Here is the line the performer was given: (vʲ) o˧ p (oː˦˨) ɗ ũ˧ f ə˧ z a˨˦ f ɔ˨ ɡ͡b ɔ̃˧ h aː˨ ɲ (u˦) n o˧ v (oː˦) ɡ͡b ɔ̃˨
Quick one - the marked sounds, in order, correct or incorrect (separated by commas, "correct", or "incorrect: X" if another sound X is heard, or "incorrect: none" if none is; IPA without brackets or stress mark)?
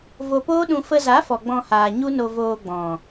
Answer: incorrect: v, incorrect: oː˦, correct, incorrect: oː˧